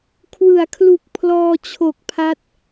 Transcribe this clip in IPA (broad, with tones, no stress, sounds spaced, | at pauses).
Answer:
kʰ w ɯ˩˦ a̯ kʰ l u˨˩ k̚ pʰ l ɔː˧ t͡ɕʰ o˨˩ k̚ pʰ a˦˥ t̚